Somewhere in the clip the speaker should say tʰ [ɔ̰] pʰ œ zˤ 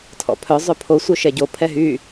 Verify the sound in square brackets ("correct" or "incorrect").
correct